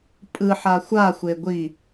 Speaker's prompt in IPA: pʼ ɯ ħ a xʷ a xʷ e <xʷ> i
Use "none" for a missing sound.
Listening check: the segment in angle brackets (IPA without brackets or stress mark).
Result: ɡʷ